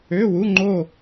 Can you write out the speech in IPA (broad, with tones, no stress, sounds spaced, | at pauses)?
ø˧˥˧ w u˧˥˧ ŋ͡ǃ o˥˧